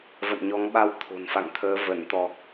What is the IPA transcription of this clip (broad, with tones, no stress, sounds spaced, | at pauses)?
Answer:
v ə̰˧˨ n ɲ ɔ˨˦ ŋ ɓ a˧ w t̪ʰ o̤˨˩ n f a̰˧˨ ŋ t̪ʰ əː˨˦ v ə˧˩ n t̪ ɔ˨˩ k̚